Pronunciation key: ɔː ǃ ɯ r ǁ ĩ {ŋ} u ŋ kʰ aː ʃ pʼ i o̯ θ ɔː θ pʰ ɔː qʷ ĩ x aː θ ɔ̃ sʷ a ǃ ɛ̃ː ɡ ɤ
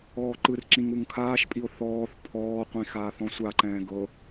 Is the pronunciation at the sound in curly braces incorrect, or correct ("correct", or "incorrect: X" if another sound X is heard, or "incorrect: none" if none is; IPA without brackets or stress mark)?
correct